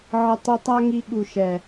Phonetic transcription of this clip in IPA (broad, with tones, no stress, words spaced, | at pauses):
ʕə˧ tˤi˧tˤa˦ŋi˧ ɠu˨ʃɛ˨